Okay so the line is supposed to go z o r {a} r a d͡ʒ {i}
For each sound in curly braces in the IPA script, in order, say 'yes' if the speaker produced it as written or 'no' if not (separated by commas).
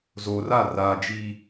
yes, yes